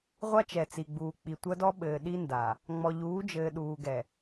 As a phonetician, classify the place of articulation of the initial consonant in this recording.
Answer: uvular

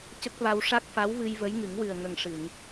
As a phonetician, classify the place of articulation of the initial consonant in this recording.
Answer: palatal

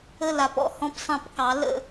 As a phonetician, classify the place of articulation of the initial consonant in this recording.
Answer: alveolar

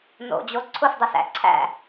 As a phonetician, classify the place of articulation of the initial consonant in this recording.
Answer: alveolar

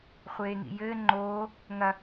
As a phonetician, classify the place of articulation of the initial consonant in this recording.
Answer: uvular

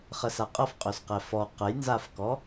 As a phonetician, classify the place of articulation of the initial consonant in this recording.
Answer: uvular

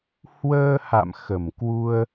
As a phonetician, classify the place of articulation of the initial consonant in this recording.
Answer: glottal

